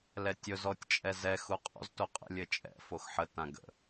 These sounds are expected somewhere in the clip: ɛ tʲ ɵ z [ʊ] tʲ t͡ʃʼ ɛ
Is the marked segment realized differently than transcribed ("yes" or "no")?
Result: yes